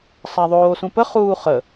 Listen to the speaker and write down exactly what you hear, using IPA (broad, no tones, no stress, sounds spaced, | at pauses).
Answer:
sˤ a ðˤ oː s ũ p ə χ uː χ ə